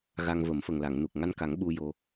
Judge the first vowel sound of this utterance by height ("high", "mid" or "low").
low